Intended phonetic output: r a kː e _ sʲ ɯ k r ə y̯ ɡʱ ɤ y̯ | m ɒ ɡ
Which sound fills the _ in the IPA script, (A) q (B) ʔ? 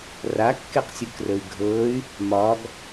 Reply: A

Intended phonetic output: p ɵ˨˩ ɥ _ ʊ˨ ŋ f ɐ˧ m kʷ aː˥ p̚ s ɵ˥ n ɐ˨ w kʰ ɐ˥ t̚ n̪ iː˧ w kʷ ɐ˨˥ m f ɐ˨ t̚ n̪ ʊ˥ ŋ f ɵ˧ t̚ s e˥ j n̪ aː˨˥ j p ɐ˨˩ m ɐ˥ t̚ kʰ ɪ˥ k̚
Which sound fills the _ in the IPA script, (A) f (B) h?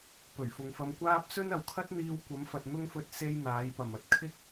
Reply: A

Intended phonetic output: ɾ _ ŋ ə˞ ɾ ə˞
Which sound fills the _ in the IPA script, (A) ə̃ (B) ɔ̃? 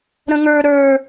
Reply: A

